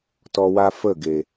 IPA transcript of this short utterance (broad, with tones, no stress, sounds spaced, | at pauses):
t ɔ˧ w a˦ f ə˦˨ ɡ e˨